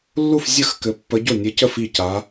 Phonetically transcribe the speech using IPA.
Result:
lː u˥˩ f zʲ ə˥˩ x k ɘ˧˥ pː ə˧˥ ɟ o˥˩ nʲ ɘ˧˥ c ə˥˩ f i˥˩ c aː˧˥

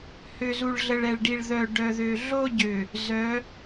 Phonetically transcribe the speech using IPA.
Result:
h ø˨ z u˨ ɭ ɮ ə˨ ɭ ɛ˨ ɭ ɖ i˨ ɭ ð œ˨ ɖ œ˨ ð ø˨ ɮ o˦ ɟ ø˨ | z œ˨˦

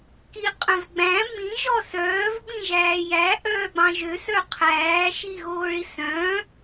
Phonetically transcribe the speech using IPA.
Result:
k i qʼ œ̃ v ɡ͡b æ̃ m ĩ ʒ ɔ s œː v ɓ ĩ ʒ æː j æ ʔ œː ɡ͡b ɑ̃ ʒ ø s œ qʰ æː ʃ i ɣ oː ɭ i s œ̃ː

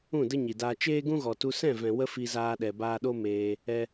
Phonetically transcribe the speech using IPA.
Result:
ũ˦˨ d ə˦ ɲ i˨ d aː˧ t͡ʃ eː˦ ɡ ũ˦ ɣ ɔ˨ t u˧ s ɛ̃˦˨ v ɛ̃˨ w ə˦ f i˧ z aː˧ ɗ ɛ˨ b aː˧ ɗ o˦ m eː˧ | ɛ˧

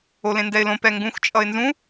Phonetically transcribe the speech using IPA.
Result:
o l ẽ n d ɛ ɪ̯ l õ p ɛ ŋ ɡ ũ x t͡ʃʼ ʌ ɪ̯ n z ũ

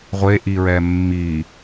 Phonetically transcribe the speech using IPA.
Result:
ʁʷ e ʔ i ɹ ɛ mː i

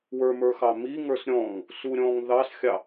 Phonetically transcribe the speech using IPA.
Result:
w ə˞ m ə˞ x ɑ m i ŋ ə˞ s ɾʲ ɔ̃ ŋ | s u ɾʲ ɔ̃ ŋ ð ɑ s xʲ ɑ

